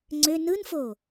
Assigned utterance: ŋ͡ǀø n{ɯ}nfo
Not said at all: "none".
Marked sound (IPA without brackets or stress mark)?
ɯ